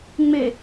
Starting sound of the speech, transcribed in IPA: ŋ͡m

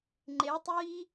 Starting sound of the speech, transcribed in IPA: ŋ͡ǃ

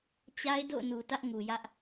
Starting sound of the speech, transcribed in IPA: t͡ɕ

